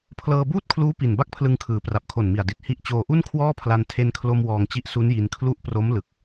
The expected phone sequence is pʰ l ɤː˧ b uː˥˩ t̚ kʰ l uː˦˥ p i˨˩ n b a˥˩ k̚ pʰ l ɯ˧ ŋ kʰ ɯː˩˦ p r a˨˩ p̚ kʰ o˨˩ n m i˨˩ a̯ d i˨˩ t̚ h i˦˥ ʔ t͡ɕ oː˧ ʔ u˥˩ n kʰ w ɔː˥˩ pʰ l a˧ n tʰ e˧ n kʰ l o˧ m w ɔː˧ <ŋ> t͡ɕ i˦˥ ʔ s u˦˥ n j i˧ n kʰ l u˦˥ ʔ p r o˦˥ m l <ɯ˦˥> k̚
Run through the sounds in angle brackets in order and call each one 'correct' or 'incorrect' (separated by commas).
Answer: correct, incorrect